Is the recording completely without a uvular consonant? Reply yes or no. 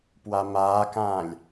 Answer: yes